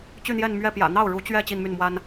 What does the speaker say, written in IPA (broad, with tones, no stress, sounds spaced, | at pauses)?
t͡ɕ y˥˧ n̪ j ɛ˥˧ n m ɥ ɛ˥˩ p j ä̰˨˩ n̪ ɑ˥˩ ʊ̯ ɻ u˧˥ t͡ɕ ɥ ɛ˥˧ t͡ɕ i˥˧ n m y˥˩ n m w a˥ n